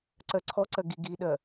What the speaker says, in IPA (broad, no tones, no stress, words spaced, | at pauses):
ǀɜǀʰɔǀɜ ɡi ɡiɗɜ